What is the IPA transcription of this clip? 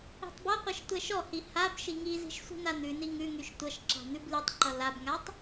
i̤ tˤ b ʌ qʷ i ʃ tʷ ɛ ʃ ɔ h i h a b ʃ i ŋ i z i̤ ʃ sʷ i̤ n a n̪ ʉ n i ŋ ʉ ŋ y ʃ tʷ ʌ ʃ ǁ a̤ n̪ ʉ b l y tˤ ǃ ʌ l a b ŋ a tˤ

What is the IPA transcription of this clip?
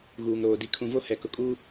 ɣ uː˨ ŋ ɾ oː˨ d i˨ kʰ ũ˨ v o˦ h ɛ˨ k ʊ˨ kʼ uː˦

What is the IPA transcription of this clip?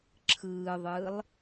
ǁʰ ɯː ðˤ ɯː lˠ

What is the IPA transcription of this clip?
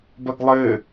b ɐ ɡ lˠ ɘː

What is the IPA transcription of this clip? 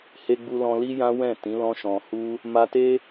h e˧ ɡ͡b u˧ l ɔ̃˧ l i˦ j ã˦ w ɛ̃˦˨ t ĩ˨˦ l ɔ̃˦ ʃ ɔ̃˧ h u˦ | m a˧ t e˦

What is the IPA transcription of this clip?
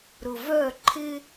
ɾ ʊ˨ v œː˦˨ ǃʰ ɪ˦

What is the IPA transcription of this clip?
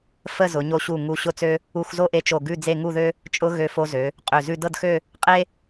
f ə˥˧ z ʊ˩˧ ɲ o˧ ɕ u˧˩ ŋ u˧ ɕ ʊ˥˧ t͡s ø˥ | u˧ x z o˥ ʔ e˧ t͡ʃ o˧˩ ɡ ʉ˥˧ d͡z e˥˧ ŋ u˥˧ ð ø˥ | t͡ʃʼ ʊ˥ ɣ ø˧ f o˧ z ø˩˧ | qʼ ø˧˩ z ʉ˥˧ d ɤ˥˧ d x ø˥˧ | qʼ e˥

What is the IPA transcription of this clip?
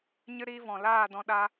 ɲ ɨ˦ ɾ iː˦ v ɔ̃˨ l aː˦˨ d ɔ̃˧ ɗ a˦

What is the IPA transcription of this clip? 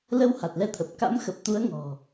l ə˧ w h a˨˩ t̚ l ɛ˧ t̪ʰ ə˨˩ p̚ k a̰˧˥ m x ə˨˩ p̚ t̪ u˨˦ ə̯ ŋ ɔ̤˨˩

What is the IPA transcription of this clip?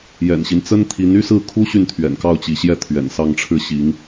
j ɛ̰˨˩ n ɕ i˦ n t͡s ə˥ n t̪ʰ i˧˥ n y˥ s ɹ̩˥˩ kʰ u˥ ɕ y˥˩ n t̪ʰ ɥ ɛ̰˨˩ n k ɑ˥˩ ʊ̯ t͡ɕ i˧˥ ɕ j ɛ˥˩ t̪ʰ ɥ ɛ̰˨˩ n s ɑ˥˧ ŋ ʈ͡ʂʰ ɻ̩˥˩ ɕ i˧˥ ŋ

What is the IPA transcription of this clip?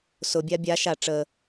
s ʊ bʲ a bʲ a ʃ a ʈ͡ʂ ə

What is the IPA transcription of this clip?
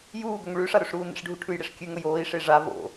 j uː ɡ ɵ ŋ ɭ ʉ ʂ a ɾ ɵ ʂ ɾ uː n ḛ ʂ ɖʱ u ʈʰ ʉ j ɽ e ʂ kʲ ʉ ŋ ɵ j oː i̯ ʂ e ʐ a v o̰

